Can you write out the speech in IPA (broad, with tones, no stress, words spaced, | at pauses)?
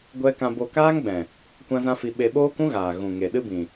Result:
ɡʷɛ˦ kã˧bo˧kaː˦ŋɡ͡bɛ̃˨ | kʷã˦zã˦fi˧ ɓe˧ɓoː˦kũ˦ɣaː˨ ɣũ˨ŋe˨ ɗɨ˦bĩ˨